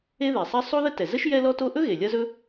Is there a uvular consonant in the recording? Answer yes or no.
no